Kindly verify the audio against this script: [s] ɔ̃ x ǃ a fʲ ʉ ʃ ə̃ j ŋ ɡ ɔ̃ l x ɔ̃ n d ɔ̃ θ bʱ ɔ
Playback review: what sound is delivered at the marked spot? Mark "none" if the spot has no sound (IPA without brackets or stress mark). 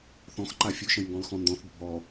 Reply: θ